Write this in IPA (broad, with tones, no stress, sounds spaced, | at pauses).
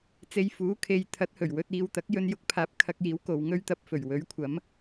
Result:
t͡s e˧ j f uː˨˥ kʰ e˨˧ j t̪ʰ ɐ˨˥ t̚ h ɵ˨˩ ɥ w ɵ˧ t̚ iː˨ w t̪ ɐ˨˥ k̚ j ɵ˧ n j ʊ˨˥ k̚ pʰ aː˨˥ p̚ kʰ ɐ˧ k̚ j iː˨˥ w k o˨ w ŋ ɵ˥ ɥ t̪ ɐ˨ p̚ f ɵ˨˩ ɥ w ɵ˨˥ ɥ kʷʰ ɐ˨˥ m